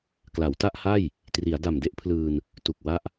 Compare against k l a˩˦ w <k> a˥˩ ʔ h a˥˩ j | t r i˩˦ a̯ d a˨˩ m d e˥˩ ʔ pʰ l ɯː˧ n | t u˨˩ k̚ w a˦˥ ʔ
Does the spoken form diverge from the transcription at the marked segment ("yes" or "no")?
yes